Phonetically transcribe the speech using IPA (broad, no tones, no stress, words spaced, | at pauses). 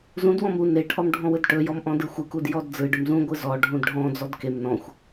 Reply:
zũdwɔ̃m u neʈʰɔm ɖʱɔ̃wɯdʈɵjɔm ʔɔ̃dɯxʷɯkud jɔdd͡zɯɖɵm zũɡʷɯ zɔ ɖʱũdɖʱɔ̃d͡zɔd kem nɔ̃xʷ